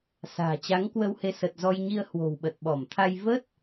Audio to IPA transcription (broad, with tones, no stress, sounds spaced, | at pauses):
s a̤ː˨˩ t͡ɕ a˨˦ ŋ k w ə˧ w h e˧ s ə˨˩ t̚ z ɔ˧ j ɲ i˧ ə̯ h w o̤˨˩ w ɓ ə˨˩ t̚ ɓ ɔ˧˩ m t̪ʰ a˧ j v ə˦˥ t̚